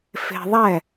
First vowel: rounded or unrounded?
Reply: unrounded